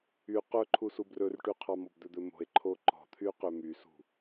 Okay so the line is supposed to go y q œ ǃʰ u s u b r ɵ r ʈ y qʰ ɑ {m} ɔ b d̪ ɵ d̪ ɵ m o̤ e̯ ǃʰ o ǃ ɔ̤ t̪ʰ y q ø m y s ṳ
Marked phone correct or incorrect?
correct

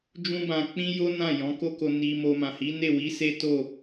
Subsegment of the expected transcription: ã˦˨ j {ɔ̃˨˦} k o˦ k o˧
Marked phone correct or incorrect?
correct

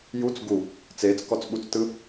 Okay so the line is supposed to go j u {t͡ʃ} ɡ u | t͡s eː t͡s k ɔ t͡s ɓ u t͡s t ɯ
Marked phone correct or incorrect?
incorrect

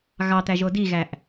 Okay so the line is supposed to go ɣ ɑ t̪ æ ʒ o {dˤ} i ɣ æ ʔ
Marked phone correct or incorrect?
incorrect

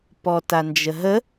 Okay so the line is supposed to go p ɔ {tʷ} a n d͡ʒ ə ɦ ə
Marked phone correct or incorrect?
incorrect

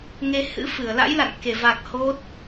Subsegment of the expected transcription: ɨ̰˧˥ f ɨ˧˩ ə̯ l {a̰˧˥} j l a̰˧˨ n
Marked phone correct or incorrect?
correct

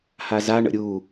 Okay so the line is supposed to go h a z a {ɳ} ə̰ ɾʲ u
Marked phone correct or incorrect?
correct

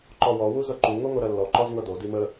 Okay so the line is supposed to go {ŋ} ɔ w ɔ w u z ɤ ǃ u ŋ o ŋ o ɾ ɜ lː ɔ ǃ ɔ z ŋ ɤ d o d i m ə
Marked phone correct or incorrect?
incorrect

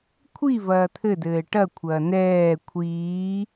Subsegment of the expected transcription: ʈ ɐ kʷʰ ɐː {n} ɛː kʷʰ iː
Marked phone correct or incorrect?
correct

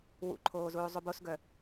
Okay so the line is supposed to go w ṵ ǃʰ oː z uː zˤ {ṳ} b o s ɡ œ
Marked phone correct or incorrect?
incorrect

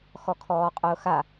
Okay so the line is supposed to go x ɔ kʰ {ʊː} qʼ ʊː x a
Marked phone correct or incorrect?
incorrect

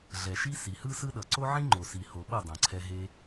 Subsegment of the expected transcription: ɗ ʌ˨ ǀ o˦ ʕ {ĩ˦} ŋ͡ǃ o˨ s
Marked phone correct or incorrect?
correct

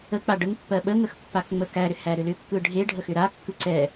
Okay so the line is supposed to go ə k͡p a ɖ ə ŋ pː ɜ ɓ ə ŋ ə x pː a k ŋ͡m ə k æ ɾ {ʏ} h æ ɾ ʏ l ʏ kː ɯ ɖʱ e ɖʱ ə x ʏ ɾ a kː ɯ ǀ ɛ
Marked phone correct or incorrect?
correct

